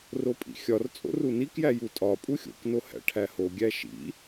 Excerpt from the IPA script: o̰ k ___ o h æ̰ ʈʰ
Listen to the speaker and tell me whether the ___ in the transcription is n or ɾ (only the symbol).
n